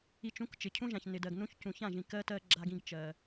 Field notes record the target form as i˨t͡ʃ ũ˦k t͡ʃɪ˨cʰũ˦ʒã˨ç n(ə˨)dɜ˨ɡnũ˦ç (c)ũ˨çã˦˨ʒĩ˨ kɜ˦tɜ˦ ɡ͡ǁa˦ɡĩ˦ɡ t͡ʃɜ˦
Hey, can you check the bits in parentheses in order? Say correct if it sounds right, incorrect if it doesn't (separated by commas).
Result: incorrect, correct